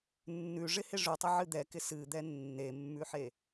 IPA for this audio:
nː ʉ ʐ ɪ h ɪ ʐ ʉ tˤ ɐ ʕ ɨ d̪ ɛ k ɪ s ɨ d̪ ɛ nː e mː ʉ ħ e

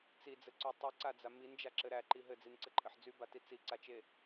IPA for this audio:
t͡s i d͡z ɘ ǀ y tˤ i ǀ a d͡z a m i n d͡ʒ a ǁ ɘ ɾ æ ǃ i ɦ ɘ d͡z i n ǀ ɘ ǃʼ ɘ ħ d͡z y b a t i t͡s i ǀ a t͡ʃ e

